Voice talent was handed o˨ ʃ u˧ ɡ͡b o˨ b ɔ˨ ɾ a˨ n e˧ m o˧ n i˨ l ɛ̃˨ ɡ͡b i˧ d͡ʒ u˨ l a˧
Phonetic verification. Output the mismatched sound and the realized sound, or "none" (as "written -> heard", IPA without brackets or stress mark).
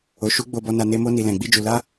ɾ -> n